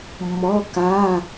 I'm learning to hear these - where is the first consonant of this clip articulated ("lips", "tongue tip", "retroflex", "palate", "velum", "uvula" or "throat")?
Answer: lips